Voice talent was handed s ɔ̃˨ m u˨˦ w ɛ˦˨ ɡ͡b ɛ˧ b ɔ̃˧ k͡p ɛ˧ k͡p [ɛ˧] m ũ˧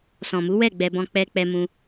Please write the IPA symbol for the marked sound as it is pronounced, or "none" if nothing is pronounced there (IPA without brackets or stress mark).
ɛ˧